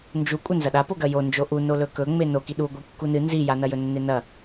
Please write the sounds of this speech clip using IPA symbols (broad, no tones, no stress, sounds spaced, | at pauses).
n d͡ʒ u kʷʼ ɐ n z ɐ ɗ a p o ɡ ɐ j o n d͡ʒ o ʔ u n o l ɵ k ɵ ŋ͡m e n o k i ɗ u ɡʷ i kː u n ɨ n z i j a n ɐ j ɵ nː e n ɐ